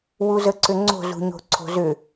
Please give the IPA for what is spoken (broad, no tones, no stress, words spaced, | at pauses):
wuzəǀʏŋ͡ǀo̤ zṳɲo̤ǀʰo̤zʏ